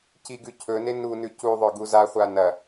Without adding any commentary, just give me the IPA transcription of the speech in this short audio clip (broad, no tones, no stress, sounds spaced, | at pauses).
c i ɡ ʉ cʰ ɵ n e n u n ʉ c u ðˤ ɵ ɡ u z a χʷ a n ɐ